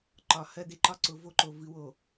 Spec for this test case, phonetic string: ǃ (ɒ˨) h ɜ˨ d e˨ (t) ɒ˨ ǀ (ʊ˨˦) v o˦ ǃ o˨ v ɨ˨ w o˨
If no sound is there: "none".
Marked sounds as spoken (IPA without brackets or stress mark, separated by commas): ɒ˨, ǃ, ʊ˨˦